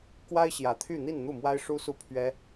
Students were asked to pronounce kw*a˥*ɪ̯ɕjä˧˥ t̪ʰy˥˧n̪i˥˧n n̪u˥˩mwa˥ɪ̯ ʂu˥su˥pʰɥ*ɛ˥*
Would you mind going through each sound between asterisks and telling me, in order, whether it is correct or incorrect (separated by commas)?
correct, correct